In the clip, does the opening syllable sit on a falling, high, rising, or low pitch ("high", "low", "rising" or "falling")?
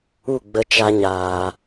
falling